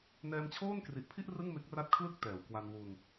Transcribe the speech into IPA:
n ɛː˧ m t͡ɕʰ oː˥˩ n k r i˨˩ ʔ pʰ i˥˩ ʔ r ɯ˥˩ ŋ m e˦˥ k̚ r a˦˥ t̚ kʰ l ɯ˥˩ k̚ t ɛː˨˩ w k w a˧ n w u˧ n

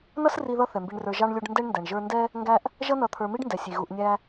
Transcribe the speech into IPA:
n ʌ˥ s r i˦ ð ʌ˥ θ ɛ˩ m b i˨ ɳ r ə˞˨ ʒ ɑ˥ ɳ lʲ u˦ ɖ n d ɛ˥ ɳ n d æ˩ ɳ ʒ ə˞˦ n d ɛ˥ | ŋ ɡ æ˥ ʔ | ʒ ʌ˦ n ʌ˨ t̪ʰ ə˞˨ m i˥ ɖ n d ɛ˩ sʲ i˩ ɣ u˨ ʔ nʲ æ˦

